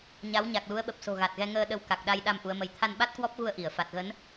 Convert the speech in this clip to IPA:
ɲ a˨˦ w ɲ a˨˩ k̚ l u˨˦ ə̯ ɓ ə˨˩ p̚ s o̤˨˩ ɣ a˨˩ t̚ ɣ ɛ˧ ŋ əː˧ ɗ ə˧ w k a˨˩ k̚ ɗ a˧ j ɗ a˧ m ʔ u˨˦ ə̯ m ə˧ j t̪ʰ a˧ n ɓ a˦˥ t̚ k w ɔ˦˥ p̚ ɣ u˧ ə̯ ʔ i˧˩ ə̯ f a˨˩ t̚ ɣ ə˨˦ n

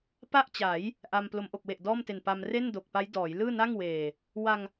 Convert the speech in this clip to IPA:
p a˥˩ ʔ t͡ɕ a˩˦ j | ʔ a˧ m p l o˩˦ m ʔ o˨˩ k̚ w e˨˩ ʔ d ɔː˥˩ m t e˨˩ n p a˧ m r e˥˩ n d o˨˩ k̚ p a˦˥ j d ɔː˩˦ j l ɯː˥˩ n a˥˩ ŋ w eː˨˩ | w a˧ ŋ

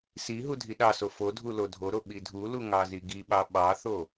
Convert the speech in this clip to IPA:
s i ɦ u dʱ i ɗ ɑ s o f o dʱ u l o dʱ o ɾ o ɓ i dʱ u l u ŋ ɑ z i ɡ i ɓ ɑ ɓ ɑ θ o

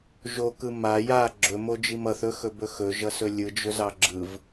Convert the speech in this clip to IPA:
ʒ o k ɯ m a j a ɡ͡ǁ ɵ m o d͡ʒ i m ʌ θ ɵ x ɵ b ɵ x ɵ ʒ ʌ s ɵ lʲ ɯ d͡ʒ ɵ z ɑ ɡ͡ǁ ɯ v

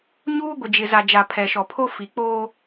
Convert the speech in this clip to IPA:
ɲ uː˦ ɡʷ ɪ˨ d͡ʒ ɪ˨ z a˨ d͡ʒ a˨ pʰ ɛ˨ ʃ ɔ˨ pʰ o˦ f i˨ k͡p oː˦

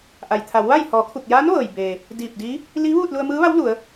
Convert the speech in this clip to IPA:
ʔ a˩ j t̪ʰ a˩˧ w ʋ a˥˨ j h ɔː˩˧ kʰ u˧˩ k̚ j aː˧˥ n ʋ ɤː˩ j b eː˩ | d iː˧˩ p̚ d iː˧˥ | l iː˧˥ ʋ uː˥˨ t̚ l u˧ ə̯ m ɯː˧˥ ʋ a˧˥ w l u˩˧ ə̯

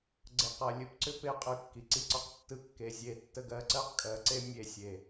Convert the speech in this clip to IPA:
ɡ͡ǀ ə˨ q ɜ˨ lʲ ɯ˨ p ǀ ʏ˦ p e˦ qʼ ɯ˨ kː i˨ ǀ i˦ ǀ ɒ˦ q tː ɯ˦ kː e˨ zʲ e˨ tː ə˨ ɡ ɜ˨ ǀ ɜ˦ q kʼ ɜ˨ ǀ e˦ mʲ e˨ sʲ e˨

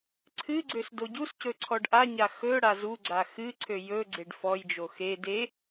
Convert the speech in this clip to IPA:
ǀʰ ɨ ɡ͡ǀ ø s d o ɟ u s c ɵ ǀʰ ɔ ɖ ʔ a ɲ a x ɵ ɽ a z u ɡ͡ǀ a x ɨ ǀʰ ø j ɵ ɡ͡ǀ e ɖ f ɔ j d͡ʒ o x e d e

